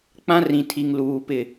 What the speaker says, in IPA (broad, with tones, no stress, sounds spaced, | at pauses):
k͡p ã˦ r ĩ˨ tʰ i˨ ŋ l uː˨ p ɪ˦˨